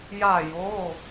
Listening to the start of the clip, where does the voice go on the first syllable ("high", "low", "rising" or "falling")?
falling